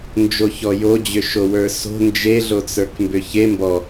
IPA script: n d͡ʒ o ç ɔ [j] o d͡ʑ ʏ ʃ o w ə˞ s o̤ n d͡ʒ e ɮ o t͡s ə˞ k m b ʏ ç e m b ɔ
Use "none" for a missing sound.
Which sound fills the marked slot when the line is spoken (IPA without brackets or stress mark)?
j